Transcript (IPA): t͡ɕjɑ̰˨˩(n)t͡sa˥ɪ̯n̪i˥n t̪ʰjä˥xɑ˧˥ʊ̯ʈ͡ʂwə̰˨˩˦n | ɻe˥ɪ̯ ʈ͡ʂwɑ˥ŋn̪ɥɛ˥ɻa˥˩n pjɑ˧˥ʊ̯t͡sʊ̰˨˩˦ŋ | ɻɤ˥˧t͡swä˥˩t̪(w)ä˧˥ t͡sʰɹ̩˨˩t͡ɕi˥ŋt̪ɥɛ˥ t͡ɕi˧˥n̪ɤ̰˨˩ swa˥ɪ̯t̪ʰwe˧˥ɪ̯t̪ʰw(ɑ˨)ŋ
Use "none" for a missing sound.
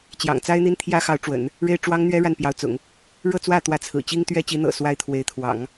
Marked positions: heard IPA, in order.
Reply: ŋ, w, ɑ̰˨˩˦

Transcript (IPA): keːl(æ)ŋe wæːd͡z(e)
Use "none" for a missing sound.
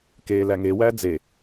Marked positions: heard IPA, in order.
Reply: æ, e

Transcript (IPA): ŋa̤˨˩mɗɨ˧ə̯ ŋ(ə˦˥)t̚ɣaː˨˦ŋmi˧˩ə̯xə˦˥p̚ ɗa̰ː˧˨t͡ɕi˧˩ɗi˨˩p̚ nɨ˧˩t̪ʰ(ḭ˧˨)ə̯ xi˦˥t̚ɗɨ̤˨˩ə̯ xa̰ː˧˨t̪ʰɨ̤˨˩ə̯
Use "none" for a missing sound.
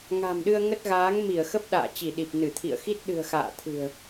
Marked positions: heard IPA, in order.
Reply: ə˦˥, ḭ˧˨

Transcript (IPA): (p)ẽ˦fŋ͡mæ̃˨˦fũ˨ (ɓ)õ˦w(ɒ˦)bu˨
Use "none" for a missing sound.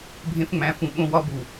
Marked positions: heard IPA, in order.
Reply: bʱ, ɓ, ɒ˦

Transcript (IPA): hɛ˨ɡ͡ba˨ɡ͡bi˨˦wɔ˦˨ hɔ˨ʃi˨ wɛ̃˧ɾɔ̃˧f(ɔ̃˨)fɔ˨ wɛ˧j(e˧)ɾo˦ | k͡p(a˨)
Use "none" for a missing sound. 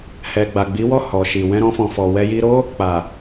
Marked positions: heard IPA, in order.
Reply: ɔ̃˨, i˧, a˨

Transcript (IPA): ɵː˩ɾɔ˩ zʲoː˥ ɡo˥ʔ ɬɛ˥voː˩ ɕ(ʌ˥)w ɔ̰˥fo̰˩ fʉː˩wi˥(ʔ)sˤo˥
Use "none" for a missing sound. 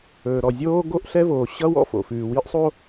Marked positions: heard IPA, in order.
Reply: ʌ˥, ʔ

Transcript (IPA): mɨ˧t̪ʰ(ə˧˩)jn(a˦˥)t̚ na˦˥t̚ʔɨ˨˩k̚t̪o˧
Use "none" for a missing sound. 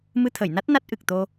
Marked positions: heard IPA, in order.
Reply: ə˧˩, a˦˥

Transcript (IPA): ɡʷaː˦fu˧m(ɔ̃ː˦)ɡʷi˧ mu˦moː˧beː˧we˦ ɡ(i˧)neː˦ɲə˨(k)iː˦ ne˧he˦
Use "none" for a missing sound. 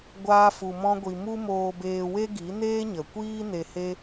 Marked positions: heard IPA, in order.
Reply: ɔ̃˦, i˨˦, kʷ

